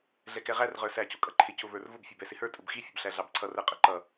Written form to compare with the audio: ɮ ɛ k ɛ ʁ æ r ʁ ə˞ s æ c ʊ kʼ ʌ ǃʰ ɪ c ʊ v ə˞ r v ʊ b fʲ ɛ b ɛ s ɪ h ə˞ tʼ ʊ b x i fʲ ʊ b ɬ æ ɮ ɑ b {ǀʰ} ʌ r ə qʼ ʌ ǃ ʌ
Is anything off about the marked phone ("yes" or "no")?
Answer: no